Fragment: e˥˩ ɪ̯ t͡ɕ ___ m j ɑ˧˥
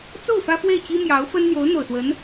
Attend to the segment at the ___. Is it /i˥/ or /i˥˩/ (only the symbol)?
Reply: i˥